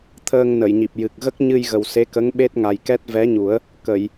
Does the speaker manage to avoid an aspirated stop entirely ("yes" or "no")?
no